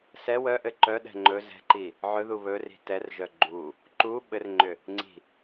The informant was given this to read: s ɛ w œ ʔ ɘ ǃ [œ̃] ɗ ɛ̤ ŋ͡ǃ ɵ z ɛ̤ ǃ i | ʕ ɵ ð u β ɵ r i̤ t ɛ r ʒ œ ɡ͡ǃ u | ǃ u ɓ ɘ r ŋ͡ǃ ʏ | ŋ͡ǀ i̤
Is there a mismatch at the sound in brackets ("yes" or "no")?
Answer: yes